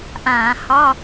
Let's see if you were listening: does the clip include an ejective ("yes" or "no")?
no